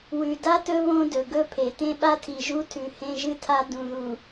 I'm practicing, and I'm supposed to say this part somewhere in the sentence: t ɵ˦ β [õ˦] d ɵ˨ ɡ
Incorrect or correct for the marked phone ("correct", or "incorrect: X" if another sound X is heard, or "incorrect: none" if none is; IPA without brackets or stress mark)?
correct